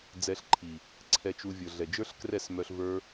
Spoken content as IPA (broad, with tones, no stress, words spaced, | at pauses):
d͡zɛ˧ɬǃʰi˨ | ǀʰɛ˨t͡ʃu˨ vʲə˞˨ɮɛ˨ d͡ʒə˞˦ɬkrɛ˦˨smœ˧ɬ və˞˦